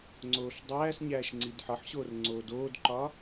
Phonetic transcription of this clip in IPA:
ŋ͡ǀ oː ɬ dˤ æː s ɲ æː ʃ ŋ͡ǀ i d ħ ɒ ħ ɕ oː r ŋ͡ǀ oː d oː d ǃ ɒ

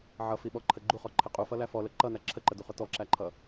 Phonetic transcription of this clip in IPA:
ʕ ʌ f i ɓ ɔ ǃʰ ə ɡ͡ǃ u χ ɔ ǃʰ ɪ qʼ u f ʌ l æ f ɔ l ə ǃ ʌ n æ ǁʰ ə ǃ ə d u χ ʊ t ɔ ǁ æ ǃʰ ʌ

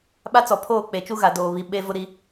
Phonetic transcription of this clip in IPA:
ɓ a˦ t͡s ɔ˨ pʰ oː˦˨ k͡p e˨ t͡ʃ u˦ ɣ a˨ d oː˨ β i˨ ɓ e˦ v ʊ˦ ɾ i˦

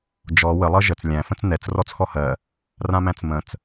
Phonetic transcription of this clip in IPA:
d͡ʒ ɔ w ə lˠ ɤ ʒ ə t͡s lʲ æ̃ f ə̃ t͡s n ɛ t͡s r ɔ t͡s x ɔ h ɜ | r ã m æ̃ t͡s m ə̃ t͡s

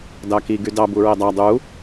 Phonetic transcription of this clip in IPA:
d ɑ k i ɡ y d ɑ b u ɹ e dˤ æ dˤ u

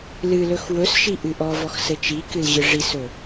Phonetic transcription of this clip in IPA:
l ɨ l ɵ x w ɵ s ʃ i ʔ ɨ ʔ ɔ v ɔ x s ɘ t͡ʃ i k ɨ l ʑ ɨ ʐ i s ɵ

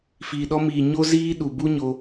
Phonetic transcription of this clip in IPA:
f iː˨ ɗ ɔ˧ m iː˨ ɲ o˦ z iː˦ ɗ u˨ b u˦ ɲ o˧

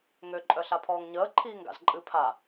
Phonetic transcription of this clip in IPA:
ŋ ø ǃʼ œ ɬ a pʰ ɔː ŋ ɲ əː ǃʰ iː ŋ ɡ a̰ z ǃʼ ɨ pʰ a

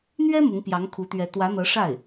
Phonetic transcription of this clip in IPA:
n̪ ɥ ɛ˥ m ʊ˧˥ ŋ p j ɑ˧˥ ŋ kʰ u˧˥ t̪ ɥ ɛ˧˥ t̪ w ä˧˥ n̪ ɤ˧˥ ʂ a˥˩ ɪ̯

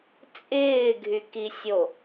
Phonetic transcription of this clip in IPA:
t͡sʼ ɪː ɡʱ y k i sʲ o

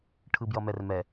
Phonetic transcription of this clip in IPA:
ʈʰ ɯ b j ʌ m ɛ r m ɛ

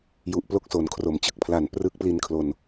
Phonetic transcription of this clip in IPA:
j u˨˩ ʔ p l o˥˩ k̚ s o˩˦ n kʰ r o˩˦ m t͡ɕ ɯ˦˥ k̚ pʰ l a˨˩ n p r ɯ˦˥ k̚ p l i˧ n kʰ l o˨˩ n

